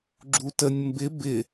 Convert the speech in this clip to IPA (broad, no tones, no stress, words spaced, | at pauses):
ɡ͡ǁutənʲ mbɪ bɪ